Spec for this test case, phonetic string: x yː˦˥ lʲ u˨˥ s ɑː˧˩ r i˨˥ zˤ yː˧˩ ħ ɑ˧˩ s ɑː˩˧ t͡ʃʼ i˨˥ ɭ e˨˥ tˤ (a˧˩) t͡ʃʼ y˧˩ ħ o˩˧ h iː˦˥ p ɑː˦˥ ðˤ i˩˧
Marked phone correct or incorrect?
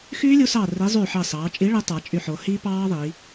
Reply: incorrect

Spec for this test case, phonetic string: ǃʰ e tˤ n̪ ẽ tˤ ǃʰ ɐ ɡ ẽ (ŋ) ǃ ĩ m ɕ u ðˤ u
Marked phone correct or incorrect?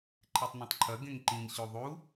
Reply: correct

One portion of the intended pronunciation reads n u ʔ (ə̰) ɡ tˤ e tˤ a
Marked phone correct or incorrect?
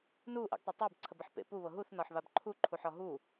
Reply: correct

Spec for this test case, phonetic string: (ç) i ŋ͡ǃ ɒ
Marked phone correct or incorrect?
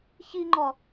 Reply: correct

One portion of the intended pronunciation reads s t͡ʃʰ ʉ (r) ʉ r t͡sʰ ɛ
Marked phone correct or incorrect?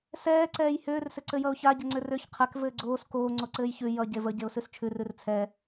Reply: correct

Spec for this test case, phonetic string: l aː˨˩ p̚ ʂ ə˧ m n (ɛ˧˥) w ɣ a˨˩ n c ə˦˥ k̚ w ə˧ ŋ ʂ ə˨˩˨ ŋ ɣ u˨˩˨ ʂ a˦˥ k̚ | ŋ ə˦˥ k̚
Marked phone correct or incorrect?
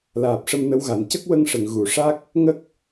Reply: incorrect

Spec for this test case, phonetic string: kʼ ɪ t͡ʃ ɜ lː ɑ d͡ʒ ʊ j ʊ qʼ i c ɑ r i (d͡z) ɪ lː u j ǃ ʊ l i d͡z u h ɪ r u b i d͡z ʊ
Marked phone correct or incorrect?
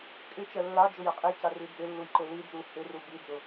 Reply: correct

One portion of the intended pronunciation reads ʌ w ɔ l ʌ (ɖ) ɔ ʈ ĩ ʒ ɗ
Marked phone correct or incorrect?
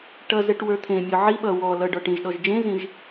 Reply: correct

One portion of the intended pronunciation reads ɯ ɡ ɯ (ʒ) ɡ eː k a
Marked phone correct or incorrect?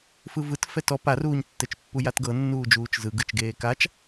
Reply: incorrect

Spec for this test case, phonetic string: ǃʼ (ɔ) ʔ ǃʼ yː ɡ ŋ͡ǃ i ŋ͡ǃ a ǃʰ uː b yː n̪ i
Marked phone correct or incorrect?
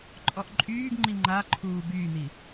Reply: correct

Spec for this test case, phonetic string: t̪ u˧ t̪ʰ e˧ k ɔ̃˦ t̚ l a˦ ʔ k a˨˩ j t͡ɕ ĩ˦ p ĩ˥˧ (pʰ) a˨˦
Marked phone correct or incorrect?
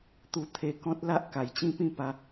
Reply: incorrect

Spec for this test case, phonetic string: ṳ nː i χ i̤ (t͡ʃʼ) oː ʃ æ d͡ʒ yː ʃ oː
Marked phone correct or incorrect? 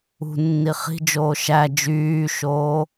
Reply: incorrect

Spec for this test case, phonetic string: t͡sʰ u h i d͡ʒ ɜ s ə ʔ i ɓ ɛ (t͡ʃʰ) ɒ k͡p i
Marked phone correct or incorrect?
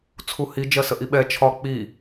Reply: correct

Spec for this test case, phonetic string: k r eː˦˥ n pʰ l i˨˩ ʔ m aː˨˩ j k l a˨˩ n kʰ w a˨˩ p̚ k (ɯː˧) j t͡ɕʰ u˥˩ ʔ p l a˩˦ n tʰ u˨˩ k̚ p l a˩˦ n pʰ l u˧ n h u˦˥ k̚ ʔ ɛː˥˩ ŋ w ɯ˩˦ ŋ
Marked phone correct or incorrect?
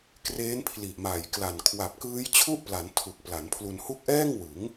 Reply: incorrect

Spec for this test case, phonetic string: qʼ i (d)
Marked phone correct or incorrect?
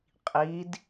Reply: correct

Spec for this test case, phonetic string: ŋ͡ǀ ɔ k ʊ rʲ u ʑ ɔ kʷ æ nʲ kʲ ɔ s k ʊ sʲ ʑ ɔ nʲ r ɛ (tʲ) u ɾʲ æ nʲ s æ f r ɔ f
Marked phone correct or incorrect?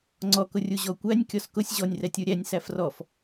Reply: correct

